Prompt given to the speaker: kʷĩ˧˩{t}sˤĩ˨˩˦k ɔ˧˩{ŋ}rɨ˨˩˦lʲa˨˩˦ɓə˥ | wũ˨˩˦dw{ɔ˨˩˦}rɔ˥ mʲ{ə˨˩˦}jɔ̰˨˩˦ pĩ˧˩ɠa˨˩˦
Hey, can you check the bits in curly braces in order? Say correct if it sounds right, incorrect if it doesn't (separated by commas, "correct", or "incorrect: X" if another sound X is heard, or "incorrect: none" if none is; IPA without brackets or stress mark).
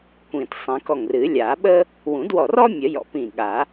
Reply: correct, correct, incorrect: ɔ˧˩, correct